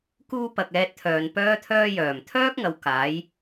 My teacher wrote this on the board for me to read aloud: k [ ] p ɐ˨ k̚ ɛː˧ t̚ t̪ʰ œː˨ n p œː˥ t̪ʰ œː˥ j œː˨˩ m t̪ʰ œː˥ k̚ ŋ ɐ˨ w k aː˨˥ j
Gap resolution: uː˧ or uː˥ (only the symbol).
uː˥